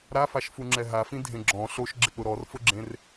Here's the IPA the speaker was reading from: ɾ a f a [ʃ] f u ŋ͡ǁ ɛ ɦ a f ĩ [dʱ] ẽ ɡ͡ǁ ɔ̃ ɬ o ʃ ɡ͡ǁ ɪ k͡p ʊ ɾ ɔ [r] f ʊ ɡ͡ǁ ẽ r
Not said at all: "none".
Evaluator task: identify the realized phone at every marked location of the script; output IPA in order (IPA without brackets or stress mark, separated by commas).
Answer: ʃ, dʱ, r